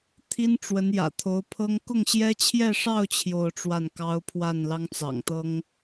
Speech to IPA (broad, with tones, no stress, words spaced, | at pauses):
t̪ʰi˥nʈ͡ʂwə˧˥n jä̰˨˩t̪ʰo˧˥ʊ̯pʰɤ˥ŋ kʊ˥˩ŋɕjɛ˥t͡ɕʰjɛ˥˧ʂɑ˥˧ʊ̯ t͡ɕʰjo˥˧ʊ̯ʈ͡ʂwa˥˩nkɑ˥ʊ̯ pʰwa˥˩nlɑ˥ŋt͡sɑ̰˨˩ŋt̪ɤ˥ŋ